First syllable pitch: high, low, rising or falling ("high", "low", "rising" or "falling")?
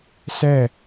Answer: falling